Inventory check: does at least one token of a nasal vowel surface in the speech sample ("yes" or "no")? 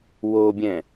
yes